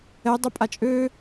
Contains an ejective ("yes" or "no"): yes